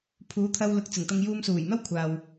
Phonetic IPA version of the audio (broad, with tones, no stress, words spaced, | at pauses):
pʰuː˨˥t̪ʰɐ˧w lʊ˨˥k̚ t͡sɪ˨˩ŋt̪ɐ˧ŋ juː˧msuː˨˩jn̪ɐ˥w kʷʰaː˨w